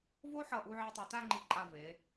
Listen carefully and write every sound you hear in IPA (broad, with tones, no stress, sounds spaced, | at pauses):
v o˥ ħ ʌ˧˩ ʔ u˧ ʕ e˧ tˤ u˩˧ t a˥˧ ŋ͡ǃ i˧˩ ǃʼ a˧˩ v e˩˧